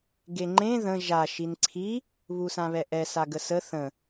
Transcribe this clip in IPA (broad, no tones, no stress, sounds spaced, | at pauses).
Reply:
ɡ e ŋ͡ǃ ẽ ð ə̃ ʒ a ʃ i n ǀʰ i | β u s ã β ɛ ʔ ɛ s a ɡ ə s ə θ ə̃